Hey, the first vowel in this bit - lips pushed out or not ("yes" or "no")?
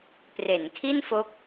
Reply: no